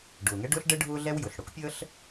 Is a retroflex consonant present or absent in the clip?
present